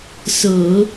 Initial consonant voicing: voiceless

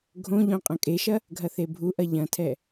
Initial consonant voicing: voiced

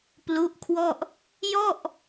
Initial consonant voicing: voiceless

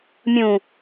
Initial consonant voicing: voiced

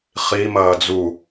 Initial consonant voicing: voiceless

